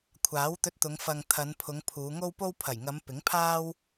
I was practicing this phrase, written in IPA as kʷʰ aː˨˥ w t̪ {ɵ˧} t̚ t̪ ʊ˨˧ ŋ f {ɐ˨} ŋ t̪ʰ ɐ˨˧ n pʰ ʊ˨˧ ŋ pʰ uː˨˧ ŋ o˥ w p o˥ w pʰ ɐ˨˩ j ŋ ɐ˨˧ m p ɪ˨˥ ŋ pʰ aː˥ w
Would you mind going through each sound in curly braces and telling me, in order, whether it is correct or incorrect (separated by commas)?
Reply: correct, correct